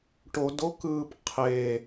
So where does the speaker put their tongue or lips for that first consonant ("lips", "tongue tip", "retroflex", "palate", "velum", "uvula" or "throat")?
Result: retroflex